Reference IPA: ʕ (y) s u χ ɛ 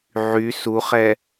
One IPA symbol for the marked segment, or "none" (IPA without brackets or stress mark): y